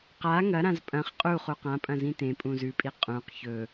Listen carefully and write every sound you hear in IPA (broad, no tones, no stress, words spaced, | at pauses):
qa ŋɐɾãz pʼɐ̃χ qʼu χuqãpʼɐ̃ zĩtẽpʼũ zʉpʼi qʼũq çɵ